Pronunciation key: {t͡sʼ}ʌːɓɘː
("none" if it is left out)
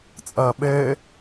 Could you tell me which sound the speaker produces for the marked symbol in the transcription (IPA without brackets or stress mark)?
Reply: t͡sʼ